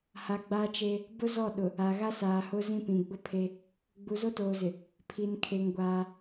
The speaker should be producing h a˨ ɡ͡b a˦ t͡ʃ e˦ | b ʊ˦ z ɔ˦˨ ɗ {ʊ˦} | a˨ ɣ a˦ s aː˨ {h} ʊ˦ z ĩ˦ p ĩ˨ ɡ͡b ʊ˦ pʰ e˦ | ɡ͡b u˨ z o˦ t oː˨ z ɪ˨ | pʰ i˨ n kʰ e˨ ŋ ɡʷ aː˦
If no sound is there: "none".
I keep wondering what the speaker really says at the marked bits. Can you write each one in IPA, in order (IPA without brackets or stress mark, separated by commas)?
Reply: ʊ˨, h